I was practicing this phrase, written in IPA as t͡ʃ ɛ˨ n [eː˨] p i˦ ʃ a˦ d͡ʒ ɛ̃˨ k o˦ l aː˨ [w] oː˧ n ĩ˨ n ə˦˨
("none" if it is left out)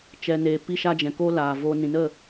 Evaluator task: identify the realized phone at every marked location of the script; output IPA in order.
eː˨, v

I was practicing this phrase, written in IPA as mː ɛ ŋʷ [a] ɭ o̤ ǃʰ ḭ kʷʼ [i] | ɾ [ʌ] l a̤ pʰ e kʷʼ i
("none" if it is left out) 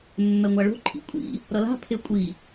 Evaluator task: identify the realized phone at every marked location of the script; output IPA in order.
a, ḭ, ʌ

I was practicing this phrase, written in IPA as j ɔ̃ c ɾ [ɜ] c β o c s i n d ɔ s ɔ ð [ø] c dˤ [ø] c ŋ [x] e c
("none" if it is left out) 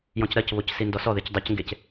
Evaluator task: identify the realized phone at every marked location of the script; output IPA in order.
ɜ, e, ø, ɡ

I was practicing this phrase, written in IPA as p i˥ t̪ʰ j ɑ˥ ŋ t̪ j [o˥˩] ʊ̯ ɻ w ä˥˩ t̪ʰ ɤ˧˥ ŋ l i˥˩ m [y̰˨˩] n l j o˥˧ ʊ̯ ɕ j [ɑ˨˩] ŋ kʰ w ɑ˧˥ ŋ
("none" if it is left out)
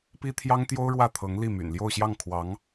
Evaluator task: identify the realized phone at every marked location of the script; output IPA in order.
o˥, y̰˨˩, ɑ˥˩

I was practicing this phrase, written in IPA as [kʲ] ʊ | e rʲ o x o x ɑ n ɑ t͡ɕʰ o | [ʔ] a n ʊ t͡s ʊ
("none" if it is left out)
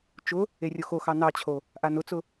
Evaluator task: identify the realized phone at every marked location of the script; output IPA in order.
t͡ʃ, ʔ

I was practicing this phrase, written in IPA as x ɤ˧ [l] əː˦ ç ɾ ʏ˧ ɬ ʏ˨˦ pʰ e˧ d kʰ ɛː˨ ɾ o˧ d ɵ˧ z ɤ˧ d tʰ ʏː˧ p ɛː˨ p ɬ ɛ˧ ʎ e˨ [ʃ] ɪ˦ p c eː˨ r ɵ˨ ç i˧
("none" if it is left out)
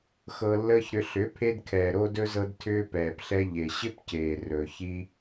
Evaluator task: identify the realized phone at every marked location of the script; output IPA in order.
lː, ɕ

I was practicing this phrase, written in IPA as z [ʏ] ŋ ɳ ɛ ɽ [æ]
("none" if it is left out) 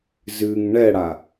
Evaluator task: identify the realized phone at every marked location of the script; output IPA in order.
ɨ, a

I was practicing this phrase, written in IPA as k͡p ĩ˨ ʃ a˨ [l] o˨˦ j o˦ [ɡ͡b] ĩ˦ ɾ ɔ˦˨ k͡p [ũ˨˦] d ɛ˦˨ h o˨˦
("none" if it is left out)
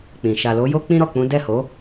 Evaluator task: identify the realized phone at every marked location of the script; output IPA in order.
l, k͡p, ũ˨˦

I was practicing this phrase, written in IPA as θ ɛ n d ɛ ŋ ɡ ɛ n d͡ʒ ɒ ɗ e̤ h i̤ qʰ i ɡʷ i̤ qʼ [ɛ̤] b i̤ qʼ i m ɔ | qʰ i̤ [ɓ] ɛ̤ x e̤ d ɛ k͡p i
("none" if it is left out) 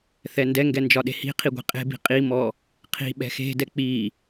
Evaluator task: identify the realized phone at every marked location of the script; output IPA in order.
e̤, ɓ

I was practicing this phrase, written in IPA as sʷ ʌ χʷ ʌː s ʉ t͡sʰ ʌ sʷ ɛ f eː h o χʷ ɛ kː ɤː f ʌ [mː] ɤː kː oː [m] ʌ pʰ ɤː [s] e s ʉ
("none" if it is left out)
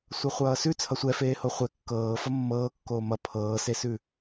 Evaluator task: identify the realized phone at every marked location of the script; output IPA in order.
mː, m, s

